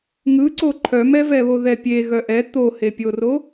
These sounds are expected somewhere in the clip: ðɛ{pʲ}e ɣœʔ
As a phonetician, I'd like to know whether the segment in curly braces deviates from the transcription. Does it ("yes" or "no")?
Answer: no